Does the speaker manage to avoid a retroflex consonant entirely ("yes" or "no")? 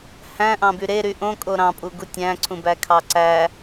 yes